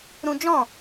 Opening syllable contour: high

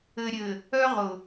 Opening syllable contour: low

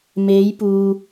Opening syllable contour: rising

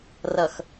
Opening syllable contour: low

